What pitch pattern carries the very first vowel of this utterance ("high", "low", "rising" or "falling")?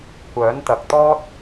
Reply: rising